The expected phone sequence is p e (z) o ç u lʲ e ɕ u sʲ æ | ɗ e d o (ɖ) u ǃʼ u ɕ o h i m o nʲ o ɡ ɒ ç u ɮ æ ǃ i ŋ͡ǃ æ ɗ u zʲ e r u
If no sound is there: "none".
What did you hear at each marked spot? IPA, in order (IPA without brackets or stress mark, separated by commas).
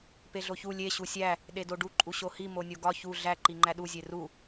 ɮ, ɖ